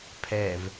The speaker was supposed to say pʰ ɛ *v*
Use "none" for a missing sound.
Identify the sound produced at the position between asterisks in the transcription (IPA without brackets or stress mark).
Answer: v